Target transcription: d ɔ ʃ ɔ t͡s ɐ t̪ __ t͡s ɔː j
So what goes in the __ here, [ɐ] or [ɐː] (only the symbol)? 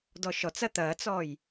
ɐː